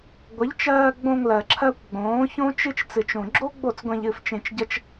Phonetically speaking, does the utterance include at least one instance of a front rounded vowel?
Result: no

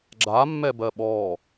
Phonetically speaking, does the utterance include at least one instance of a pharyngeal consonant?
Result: no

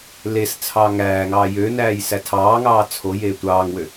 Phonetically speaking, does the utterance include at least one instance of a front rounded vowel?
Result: yes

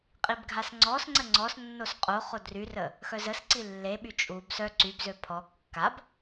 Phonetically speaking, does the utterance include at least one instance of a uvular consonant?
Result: yes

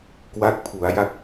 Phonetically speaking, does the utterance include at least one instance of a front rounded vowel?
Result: no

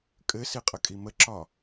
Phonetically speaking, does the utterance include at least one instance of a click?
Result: yes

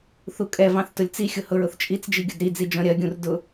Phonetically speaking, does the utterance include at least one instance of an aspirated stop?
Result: no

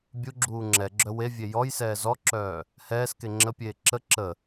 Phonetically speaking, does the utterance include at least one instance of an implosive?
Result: no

